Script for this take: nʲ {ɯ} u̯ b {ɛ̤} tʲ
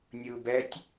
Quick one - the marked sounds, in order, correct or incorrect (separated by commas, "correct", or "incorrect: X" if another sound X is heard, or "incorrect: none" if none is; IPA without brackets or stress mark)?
correct, incorrect: ɛ